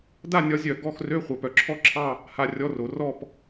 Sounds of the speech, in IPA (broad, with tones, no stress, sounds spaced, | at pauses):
d a˥˧ nʲ ɒ˨˥ zʲ œ˨˩˦ ɡ ɔ˧˥˧ x r ø˧˥˧ χʷ œ˨˩ p œ˨˩ ǁʰ ɔ˥˧ ǁʰ ɑ˥˧ | h a˧˥˧ rʲ ɔ˧˥˧ r o˨˩˦ r ɔ˥˧ p